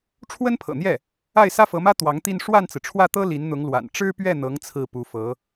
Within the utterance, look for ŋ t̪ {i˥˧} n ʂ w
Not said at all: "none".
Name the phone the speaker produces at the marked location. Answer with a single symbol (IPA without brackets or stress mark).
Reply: i˥˧